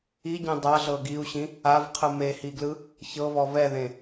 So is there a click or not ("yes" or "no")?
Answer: no